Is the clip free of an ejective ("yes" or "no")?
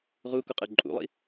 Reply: no